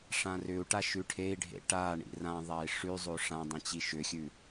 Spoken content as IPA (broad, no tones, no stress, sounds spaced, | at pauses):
ʂ ã r ʏ u̯ ʈ a ʃ ʉ ʈʰ e i̯ ɖʱ ḛ ʈ a ɳ ḭ r ã ðˤ a i̯ ʂ ʉ zˤ o ʂ ã dˤ ĩ t͡ɕ i ʃ ʏ xʲ ʉ